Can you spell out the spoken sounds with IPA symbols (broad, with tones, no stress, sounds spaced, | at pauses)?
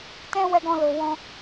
t ɛ̃˦ w ɛ˧ ɡ ɔ̃˧ l o˨ w ɔ̃˧